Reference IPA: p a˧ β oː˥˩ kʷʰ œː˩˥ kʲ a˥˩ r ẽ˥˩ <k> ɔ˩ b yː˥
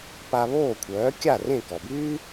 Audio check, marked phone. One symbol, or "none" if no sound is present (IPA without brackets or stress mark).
k